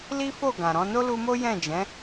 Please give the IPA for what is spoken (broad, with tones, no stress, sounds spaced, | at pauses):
l i˦ f o˦˨ ɡ ã˨ ɾ ɔ̃˨˦ n o˦ l u˧ m o˦ j ɛ̃˦˨ d͡ʒ ɛ̃˨˦